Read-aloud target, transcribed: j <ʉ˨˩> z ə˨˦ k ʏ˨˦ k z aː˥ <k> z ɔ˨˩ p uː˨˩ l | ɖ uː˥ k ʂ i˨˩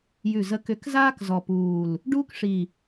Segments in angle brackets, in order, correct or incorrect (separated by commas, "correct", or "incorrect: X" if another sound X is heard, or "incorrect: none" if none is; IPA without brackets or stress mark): correct, correct